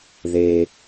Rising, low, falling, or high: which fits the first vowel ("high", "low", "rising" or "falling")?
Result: low